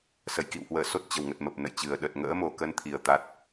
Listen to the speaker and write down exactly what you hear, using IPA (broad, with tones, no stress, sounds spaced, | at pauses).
s ə˧˩ j k ḭ˧˨ w h w əː˧˩ s o˦˥ t̚ t͡ɕ ə˧˩ w ŋ ə˨˩ t̚ m ə˨˩ p̚ n ə̰˧˨ j t͡ɕ ɨ˨˩ ə̯ ɗ ə˨˩ t̚ ŋ ə̰ː˧˥ m o˨˩ k ə˧ n t̪ʰ i˨˩ ə̯ t̪ a˦˥ t̚